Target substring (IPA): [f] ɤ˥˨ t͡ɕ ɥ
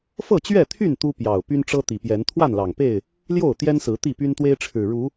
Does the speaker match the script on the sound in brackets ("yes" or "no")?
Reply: yes